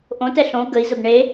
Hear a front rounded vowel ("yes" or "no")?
no